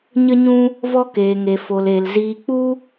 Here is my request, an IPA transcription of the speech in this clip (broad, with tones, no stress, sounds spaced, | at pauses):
ɲ ə˦ ɲ ũ˦ | v ɔ˦ k eː˧ ŋ e˧ f o˧ l e˧ l z iː˧ k͡p u˦